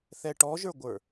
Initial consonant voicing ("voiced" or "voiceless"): voiceless